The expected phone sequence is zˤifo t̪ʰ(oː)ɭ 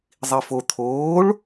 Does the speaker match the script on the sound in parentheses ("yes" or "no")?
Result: yes